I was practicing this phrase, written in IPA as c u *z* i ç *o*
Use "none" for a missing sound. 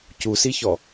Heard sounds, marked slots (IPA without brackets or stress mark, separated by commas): s, ɔ